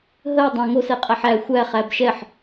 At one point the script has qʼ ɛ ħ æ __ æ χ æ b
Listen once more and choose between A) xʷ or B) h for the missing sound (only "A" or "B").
A